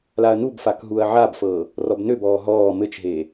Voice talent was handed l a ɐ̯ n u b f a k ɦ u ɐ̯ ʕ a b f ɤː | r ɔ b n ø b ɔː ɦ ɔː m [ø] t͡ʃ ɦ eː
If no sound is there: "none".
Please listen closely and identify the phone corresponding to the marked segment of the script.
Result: ɘ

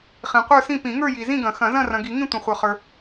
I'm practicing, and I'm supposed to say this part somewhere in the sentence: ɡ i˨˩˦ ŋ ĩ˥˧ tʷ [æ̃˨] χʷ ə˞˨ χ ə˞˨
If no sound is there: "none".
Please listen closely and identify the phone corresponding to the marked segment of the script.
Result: ɐ̃˨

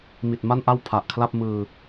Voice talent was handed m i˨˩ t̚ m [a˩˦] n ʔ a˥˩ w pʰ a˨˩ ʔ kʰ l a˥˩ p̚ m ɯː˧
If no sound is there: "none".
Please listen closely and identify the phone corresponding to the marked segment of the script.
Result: a˥˩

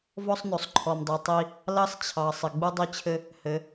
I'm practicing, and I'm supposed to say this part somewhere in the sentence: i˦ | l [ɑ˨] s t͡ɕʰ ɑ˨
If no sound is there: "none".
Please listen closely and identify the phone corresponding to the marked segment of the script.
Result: ɑ˦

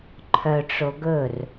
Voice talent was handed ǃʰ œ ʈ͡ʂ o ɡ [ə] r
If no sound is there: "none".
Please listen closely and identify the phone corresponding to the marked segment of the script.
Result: ɵ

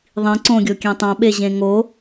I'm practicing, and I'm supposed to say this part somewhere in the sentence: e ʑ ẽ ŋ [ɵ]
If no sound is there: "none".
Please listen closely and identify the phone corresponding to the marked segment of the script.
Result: o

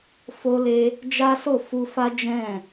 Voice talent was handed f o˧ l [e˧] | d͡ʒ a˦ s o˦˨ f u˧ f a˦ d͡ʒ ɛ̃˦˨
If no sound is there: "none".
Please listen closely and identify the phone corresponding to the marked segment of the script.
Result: e˧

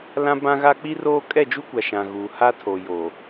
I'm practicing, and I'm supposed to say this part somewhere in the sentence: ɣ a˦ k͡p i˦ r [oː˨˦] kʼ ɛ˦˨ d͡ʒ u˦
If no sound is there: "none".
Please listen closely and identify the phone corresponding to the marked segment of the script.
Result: oː˦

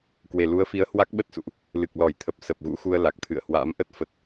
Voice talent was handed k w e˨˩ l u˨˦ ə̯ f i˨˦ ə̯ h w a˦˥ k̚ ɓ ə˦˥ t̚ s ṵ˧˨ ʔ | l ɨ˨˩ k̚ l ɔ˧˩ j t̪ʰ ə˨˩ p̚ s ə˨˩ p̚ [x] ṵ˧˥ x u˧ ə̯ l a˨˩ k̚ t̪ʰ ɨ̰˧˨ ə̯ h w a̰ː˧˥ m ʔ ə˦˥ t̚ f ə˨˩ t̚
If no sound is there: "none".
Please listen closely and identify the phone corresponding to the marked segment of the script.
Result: ɣ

